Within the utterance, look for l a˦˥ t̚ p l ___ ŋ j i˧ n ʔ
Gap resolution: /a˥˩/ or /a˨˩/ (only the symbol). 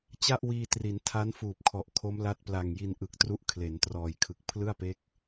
a˨˩